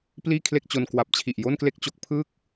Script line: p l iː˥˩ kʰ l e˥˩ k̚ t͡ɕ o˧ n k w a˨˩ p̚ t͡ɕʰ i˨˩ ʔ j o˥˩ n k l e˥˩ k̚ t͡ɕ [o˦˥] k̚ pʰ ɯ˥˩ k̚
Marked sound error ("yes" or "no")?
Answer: no